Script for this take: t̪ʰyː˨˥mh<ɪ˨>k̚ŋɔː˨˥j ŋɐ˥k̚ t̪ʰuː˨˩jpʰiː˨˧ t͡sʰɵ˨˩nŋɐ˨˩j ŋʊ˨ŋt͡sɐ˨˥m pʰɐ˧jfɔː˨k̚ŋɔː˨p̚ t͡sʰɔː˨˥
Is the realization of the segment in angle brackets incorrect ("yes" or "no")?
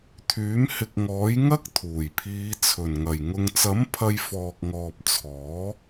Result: no